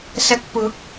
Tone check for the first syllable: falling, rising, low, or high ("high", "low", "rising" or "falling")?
low